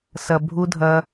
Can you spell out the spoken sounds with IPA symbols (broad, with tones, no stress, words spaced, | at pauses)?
sɐ˨ bʱu˧dʱɐ˧